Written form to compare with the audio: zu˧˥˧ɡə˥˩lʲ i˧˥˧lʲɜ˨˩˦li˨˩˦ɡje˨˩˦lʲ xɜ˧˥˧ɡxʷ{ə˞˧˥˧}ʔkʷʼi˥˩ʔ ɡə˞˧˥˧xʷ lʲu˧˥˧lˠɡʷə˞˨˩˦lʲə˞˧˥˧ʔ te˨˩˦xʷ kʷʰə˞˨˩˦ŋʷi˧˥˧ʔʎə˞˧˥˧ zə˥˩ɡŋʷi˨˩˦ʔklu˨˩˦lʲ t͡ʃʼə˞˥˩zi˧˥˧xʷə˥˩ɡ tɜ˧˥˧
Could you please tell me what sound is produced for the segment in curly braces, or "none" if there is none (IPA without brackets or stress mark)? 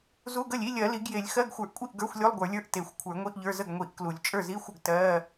ə˞˨˩˦